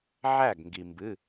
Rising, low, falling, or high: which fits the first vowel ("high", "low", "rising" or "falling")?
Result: falling